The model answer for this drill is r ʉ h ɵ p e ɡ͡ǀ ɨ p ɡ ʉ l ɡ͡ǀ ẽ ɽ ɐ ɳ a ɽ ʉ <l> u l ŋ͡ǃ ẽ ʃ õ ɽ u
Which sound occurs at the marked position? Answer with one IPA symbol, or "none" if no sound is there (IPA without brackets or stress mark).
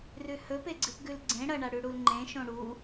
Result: ɽ